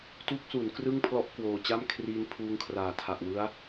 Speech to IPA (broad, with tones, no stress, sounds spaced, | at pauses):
t u˦˥ k̚ s u˩˦ n k r ɯ˥˩ ŋ pʰ l ɔ˦˥ ʔ k w oː˨˩ t͡ɕ a˥˩ m kʰ r iː˧ n pʰ uː˦˥ ŋ kʰ r aː˨˩ tʰ a˨˩ ʔ w ɯ˦˥ a̯